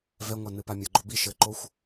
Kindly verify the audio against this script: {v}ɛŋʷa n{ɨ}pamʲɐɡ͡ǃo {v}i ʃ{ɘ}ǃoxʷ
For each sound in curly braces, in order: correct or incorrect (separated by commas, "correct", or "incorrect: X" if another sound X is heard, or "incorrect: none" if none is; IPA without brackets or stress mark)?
correct, correct, incorrect: b, correct